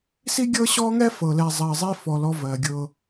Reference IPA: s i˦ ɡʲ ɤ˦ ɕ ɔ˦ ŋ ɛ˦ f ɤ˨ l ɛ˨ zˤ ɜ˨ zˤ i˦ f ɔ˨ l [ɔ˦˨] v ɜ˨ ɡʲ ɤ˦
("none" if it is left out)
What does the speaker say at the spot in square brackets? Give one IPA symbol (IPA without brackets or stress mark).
ɔ˦